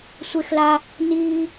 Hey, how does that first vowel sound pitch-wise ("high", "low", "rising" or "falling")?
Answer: high